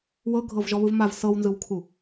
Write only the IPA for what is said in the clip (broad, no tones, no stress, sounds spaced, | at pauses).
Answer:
w ɤ ɡʱ ɤ v ʒ ɔ β ɯ v m a v s ɤ w n z ɯ w kʰ u